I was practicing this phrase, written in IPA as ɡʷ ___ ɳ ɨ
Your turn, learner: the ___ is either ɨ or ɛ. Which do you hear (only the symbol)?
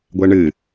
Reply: ɛ